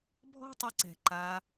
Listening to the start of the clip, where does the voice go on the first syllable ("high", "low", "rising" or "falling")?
high